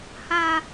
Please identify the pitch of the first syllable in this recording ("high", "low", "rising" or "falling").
high